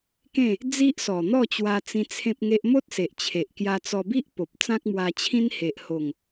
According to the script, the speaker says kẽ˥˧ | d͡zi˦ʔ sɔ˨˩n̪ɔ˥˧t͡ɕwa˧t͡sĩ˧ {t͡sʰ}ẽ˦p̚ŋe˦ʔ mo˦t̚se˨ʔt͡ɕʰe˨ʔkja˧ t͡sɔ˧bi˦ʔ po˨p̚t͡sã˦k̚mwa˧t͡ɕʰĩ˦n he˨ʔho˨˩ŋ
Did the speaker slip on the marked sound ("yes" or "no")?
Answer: no